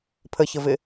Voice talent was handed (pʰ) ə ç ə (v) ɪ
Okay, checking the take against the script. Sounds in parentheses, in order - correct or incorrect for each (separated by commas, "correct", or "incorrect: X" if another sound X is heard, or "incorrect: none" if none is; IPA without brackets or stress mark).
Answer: correct, correct